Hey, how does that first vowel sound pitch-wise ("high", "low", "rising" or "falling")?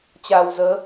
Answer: low